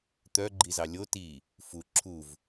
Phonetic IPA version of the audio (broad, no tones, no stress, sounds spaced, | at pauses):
t̪ œ ɡ͡ǃ i z ɑ lʲ o t i | f u ǁʰ u v